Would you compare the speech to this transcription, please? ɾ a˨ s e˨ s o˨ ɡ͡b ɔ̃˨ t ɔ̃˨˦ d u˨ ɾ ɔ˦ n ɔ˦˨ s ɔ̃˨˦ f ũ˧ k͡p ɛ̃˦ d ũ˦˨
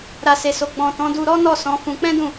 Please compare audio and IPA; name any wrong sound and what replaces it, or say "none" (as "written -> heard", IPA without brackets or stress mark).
u˨ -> u˧